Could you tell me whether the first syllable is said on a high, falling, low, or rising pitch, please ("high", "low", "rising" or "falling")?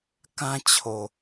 high